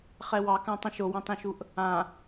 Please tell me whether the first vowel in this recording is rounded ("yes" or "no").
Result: no